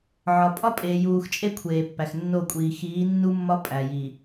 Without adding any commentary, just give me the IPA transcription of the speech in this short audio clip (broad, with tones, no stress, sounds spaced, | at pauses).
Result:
ʕ ɒ˨ pʼ ɒ˦ pʼ eː˨ j uː˨ x t͡ʃʼ e˦ kʷʰ eː˨ pː æ˨ x nː o˦˨ kʷʼ iː˨ x iː˨˦ nː u˦ mː ɒ˦ pʼ æ˨ j i˨